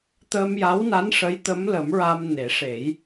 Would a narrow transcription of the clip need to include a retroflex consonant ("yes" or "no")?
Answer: yes